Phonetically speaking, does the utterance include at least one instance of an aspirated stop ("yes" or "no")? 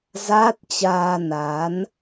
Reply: no